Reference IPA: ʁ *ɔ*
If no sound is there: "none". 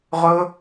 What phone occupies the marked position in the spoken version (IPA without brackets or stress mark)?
ɵ